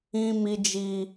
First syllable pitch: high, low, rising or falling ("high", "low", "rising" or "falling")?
high